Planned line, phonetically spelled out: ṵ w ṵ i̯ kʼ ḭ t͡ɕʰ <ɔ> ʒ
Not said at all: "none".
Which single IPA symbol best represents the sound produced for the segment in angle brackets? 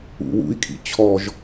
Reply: ɔ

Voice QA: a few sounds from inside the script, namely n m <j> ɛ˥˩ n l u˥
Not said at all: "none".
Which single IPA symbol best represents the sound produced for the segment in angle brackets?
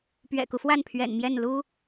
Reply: j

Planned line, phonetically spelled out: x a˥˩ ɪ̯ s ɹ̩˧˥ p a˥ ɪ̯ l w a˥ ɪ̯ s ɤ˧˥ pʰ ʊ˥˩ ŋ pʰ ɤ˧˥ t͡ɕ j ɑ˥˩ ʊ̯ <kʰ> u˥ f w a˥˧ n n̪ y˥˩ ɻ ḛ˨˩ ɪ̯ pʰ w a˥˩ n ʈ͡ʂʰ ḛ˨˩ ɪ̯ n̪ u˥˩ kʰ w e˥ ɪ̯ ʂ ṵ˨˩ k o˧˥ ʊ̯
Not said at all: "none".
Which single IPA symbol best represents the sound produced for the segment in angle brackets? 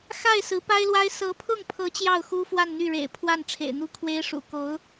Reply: x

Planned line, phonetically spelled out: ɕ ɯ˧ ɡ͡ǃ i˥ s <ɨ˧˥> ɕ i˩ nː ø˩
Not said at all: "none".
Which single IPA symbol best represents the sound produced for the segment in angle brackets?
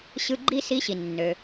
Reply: i˧˥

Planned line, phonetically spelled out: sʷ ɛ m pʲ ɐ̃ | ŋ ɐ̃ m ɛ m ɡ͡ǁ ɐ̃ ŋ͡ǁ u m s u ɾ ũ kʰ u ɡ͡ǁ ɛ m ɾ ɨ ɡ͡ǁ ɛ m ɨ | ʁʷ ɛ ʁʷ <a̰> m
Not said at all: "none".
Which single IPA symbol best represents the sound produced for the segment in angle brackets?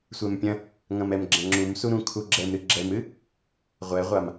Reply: a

